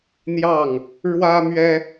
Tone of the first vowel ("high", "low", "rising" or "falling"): falling